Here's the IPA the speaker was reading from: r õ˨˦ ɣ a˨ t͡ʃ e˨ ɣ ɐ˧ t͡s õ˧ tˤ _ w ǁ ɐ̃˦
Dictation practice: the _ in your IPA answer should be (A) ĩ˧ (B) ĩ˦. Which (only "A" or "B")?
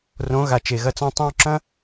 A